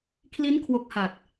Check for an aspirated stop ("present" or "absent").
present